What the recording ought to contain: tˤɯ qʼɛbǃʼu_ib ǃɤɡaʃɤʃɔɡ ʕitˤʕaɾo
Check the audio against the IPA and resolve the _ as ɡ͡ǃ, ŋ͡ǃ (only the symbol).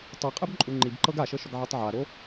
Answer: ŋ͡ǃ